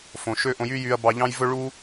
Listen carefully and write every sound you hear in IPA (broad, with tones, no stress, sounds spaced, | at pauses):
f õ˨ ʃ ø˦ ʔ õ˧ j y˦ j y˧ ɐ̯ b ɑ˧ ʎ ɑ̃˦ j v ɵ˦ ɭ u˦